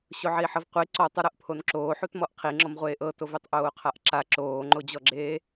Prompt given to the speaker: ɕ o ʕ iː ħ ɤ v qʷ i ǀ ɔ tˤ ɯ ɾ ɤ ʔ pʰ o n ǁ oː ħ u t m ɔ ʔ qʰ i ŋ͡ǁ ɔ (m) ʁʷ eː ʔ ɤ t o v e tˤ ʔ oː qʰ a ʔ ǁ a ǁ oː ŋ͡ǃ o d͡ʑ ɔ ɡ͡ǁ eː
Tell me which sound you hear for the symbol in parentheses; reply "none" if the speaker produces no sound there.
m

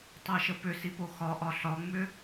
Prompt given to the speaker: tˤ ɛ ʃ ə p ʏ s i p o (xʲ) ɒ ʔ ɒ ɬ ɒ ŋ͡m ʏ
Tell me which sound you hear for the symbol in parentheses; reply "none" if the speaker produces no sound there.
x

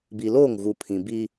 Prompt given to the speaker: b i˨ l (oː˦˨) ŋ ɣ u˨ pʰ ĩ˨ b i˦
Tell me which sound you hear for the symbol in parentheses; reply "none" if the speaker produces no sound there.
oː˦˨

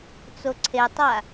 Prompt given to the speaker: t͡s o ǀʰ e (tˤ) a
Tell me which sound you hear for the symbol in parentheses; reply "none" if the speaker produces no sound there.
tˤ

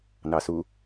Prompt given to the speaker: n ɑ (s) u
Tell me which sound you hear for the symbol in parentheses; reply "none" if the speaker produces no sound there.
s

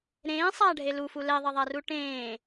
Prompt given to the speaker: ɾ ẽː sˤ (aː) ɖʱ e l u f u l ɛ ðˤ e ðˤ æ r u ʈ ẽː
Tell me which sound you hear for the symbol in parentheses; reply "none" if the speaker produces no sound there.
aː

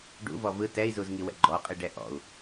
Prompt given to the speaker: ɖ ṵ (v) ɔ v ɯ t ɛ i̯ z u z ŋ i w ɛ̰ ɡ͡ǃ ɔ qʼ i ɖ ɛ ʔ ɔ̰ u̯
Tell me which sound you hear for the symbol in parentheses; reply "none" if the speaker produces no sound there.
v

